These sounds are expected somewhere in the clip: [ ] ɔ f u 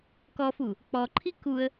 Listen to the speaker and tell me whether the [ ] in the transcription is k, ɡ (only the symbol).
k